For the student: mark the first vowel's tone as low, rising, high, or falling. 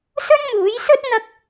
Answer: high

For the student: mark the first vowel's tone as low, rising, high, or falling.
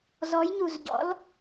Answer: rising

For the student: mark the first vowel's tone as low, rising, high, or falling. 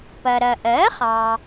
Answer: low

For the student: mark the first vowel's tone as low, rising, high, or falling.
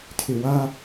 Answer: low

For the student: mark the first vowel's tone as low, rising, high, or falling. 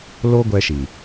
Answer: high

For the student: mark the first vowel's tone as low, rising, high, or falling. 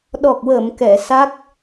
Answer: low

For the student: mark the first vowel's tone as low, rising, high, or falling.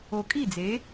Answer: low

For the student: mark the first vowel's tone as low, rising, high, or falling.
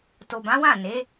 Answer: low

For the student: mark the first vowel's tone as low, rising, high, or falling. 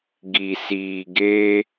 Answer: low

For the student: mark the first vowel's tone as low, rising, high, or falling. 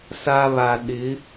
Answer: high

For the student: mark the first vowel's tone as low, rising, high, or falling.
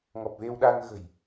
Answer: low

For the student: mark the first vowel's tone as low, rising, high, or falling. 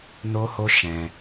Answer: high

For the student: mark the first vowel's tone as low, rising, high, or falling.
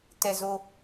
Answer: high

